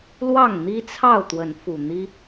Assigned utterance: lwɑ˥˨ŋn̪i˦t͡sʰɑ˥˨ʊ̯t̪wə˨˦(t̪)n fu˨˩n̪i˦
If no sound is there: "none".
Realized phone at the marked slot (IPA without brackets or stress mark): none